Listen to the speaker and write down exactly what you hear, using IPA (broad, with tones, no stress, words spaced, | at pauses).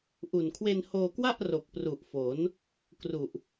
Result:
ʔu˨˩n kʰwe˧nhoː˧kwa˥˩ʔ ro˨˩k̚ pru˨˩ʔfo˩˦n | kru˨˩ʔ